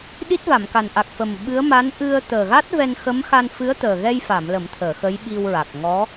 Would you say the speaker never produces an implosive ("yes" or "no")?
no